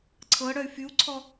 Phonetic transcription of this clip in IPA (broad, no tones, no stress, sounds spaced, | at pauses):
ǀʰ ɤ ɽ œ y̯ f y u̯ ǀʰ ɔ